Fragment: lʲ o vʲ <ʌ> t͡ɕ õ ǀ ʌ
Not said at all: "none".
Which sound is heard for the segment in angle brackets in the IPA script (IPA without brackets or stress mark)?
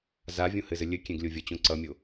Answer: ʌ